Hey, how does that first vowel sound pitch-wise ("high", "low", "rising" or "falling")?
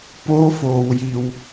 rising